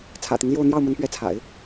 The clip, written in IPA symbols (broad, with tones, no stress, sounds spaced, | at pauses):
t͡sʰ ä̰˨˩ t̪ i˦ ŋ l j o˥˧ ʊ̯ n̪ j ɑ˥˩ ʊ̯ m ə˧˥ n p ɥ ɛ˧˥ t͡sʰ a̰˨˩˦ ɪ̯